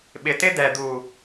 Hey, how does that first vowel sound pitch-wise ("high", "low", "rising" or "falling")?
low